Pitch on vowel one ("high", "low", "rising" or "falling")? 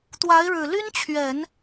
rising